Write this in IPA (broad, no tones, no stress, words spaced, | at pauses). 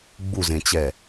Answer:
ɡ͡buzẽt͡ɕɛ